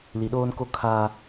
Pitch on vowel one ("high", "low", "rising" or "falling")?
low